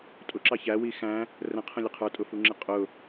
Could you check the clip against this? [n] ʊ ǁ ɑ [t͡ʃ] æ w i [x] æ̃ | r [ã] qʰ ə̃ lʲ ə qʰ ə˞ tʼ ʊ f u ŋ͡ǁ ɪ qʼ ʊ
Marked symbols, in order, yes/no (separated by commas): no, no, yes, no